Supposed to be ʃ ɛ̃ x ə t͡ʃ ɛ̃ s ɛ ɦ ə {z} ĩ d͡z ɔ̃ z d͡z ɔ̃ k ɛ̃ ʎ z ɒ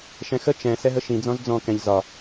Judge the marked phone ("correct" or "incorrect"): incorrect